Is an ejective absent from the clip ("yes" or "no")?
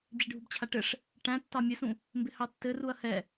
yes